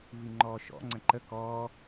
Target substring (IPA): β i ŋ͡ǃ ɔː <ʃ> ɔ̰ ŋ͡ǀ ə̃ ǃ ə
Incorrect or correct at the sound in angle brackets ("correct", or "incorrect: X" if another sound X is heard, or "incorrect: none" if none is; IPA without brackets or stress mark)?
correct